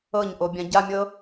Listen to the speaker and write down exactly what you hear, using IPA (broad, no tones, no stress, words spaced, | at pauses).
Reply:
ɤɲʔobʲã ɟamʲɤ